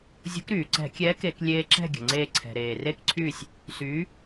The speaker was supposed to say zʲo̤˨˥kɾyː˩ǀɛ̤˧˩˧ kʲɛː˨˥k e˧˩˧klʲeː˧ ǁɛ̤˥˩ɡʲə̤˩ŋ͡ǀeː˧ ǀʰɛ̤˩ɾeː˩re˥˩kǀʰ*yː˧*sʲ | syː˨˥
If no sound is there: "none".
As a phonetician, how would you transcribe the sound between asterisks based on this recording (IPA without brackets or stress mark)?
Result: yː˥˩